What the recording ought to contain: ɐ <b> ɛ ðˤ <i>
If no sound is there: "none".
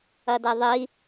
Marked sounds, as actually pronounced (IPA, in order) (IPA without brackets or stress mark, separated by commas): d, i